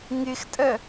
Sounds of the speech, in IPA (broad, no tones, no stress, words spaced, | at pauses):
ŋɪxtʼɜ